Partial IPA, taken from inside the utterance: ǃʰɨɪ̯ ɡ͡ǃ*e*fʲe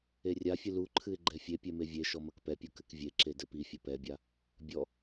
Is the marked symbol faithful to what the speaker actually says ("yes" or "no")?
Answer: no